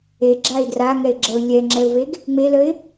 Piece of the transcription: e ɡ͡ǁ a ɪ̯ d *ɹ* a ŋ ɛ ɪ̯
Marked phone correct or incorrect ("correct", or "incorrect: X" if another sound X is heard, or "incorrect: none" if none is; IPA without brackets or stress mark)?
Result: incorrect: r